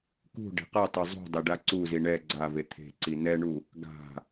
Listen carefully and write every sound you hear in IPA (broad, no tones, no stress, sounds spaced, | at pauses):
k ṳ ɖ e̤ q a tˤ o zˤ ṳ dˤ e ɖ a ǀ u z i ɳ ɛ ɡ͡ǀ a v e t̪ʰ e̤ ǀ i n ɛ ɳ u | ɡ a̤